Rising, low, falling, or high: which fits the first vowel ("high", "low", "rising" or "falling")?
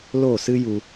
falling